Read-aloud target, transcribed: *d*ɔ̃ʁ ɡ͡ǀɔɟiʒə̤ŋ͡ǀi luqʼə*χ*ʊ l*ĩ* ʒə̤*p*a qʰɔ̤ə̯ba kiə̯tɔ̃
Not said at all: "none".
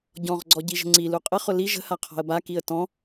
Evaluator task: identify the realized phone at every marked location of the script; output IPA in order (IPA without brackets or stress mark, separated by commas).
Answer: ɟ, χ, i, h